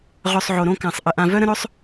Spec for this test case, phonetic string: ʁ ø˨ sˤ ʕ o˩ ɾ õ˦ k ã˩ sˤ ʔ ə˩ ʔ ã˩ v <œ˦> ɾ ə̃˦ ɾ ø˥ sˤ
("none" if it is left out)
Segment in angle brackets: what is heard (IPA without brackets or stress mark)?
œ˦